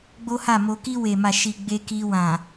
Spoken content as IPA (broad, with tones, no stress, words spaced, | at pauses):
ɡ͡bo˦ha˦˨mo˧ ki˧we˨ma˨ʃi˨ ɡ͡be˧ki˧ wã˨